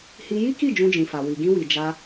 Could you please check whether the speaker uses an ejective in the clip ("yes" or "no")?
no